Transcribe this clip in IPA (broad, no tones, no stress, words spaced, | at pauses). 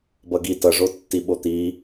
bʌɡi tʌʐo tːiɓot̪i